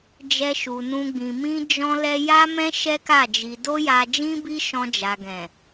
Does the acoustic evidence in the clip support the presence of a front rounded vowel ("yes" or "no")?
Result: no